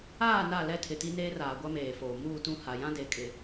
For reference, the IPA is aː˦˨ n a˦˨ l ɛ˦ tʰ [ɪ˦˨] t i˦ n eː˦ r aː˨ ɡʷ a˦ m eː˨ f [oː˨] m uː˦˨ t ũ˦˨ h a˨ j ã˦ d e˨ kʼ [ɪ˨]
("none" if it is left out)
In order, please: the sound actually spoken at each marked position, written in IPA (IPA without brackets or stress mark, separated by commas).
ɪ˨, oː˨, ɪ˨